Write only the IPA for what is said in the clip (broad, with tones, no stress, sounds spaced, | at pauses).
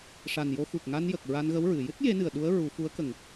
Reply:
ʂ a˨˩ n j o˧ x u˨˩ k̚ ŋ a˧ n j ə˨˩ k̚ ɹ a˧ n ɣ ə˧˥ w ɹ ɨ˨˩˨ j ɨ˦˥ t̚ j e˧˥ n ɨ˨˩ ə̯ ɗ u˧˥ ə̯ ɹ u˨˩˦ f u˧˥ ə̯ k ə˨˩ ŋ